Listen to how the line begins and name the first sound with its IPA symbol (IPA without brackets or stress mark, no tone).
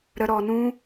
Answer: ɾ